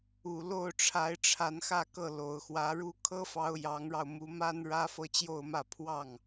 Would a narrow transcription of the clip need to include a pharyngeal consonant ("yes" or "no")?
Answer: no